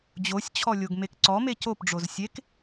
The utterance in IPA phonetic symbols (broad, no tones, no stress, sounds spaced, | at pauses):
d͡ʑ o sʲ t͡ɕʰ ɔ lʲ o ɡ m e k ǀ ɔ m e c o p ɖ͡ʐ o z sʲ e k